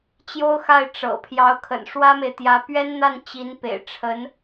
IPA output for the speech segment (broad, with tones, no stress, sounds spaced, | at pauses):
t͡ɕ j o˥ ʊ̯ x a˥˩ ɪ̯ ʈ͡ʂ ɤ̰˨˩ pʰ j ɑ˧˥ ʊ̯ kʰ ə̰˨˩ n ʂ w ä˥ m e˨ ɪ̯ t̪ j ä˧˥ p ɥ ɛ˥ n n̪ a˥˩ n t͡ɕ i˧˥ n p ḛ˨˩ ɪ̯ ʈ͡ʂʰ ə˧˥ n